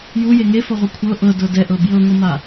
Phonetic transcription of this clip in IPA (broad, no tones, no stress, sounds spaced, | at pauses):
j u j e ŋ e f ɔ ʁʷ ɛ kʷʰ ɤ ʔ ɤ d ɤ d ɛ ʔ ɤ b j ɤ ŋʷ ɯ m a